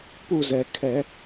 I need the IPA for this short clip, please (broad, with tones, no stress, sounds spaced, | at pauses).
p u˦˨ z ɛ˩ kʰ ɛ˧˩˧